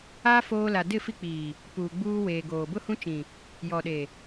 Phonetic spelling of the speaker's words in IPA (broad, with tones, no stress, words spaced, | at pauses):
aː˦ foː˦ la˨ dɪ˦˨fi˦k͡piː˨ | puː˨ɡ͡buː˦weː˨ɡoː˨ bʊ˦hũ˦t͡ʃĩ˨ | jɔ˨ɗe˨